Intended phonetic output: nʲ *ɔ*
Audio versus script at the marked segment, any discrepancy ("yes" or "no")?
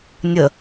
yes